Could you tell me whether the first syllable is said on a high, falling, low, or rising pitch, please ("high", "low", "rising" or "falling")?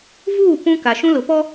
falling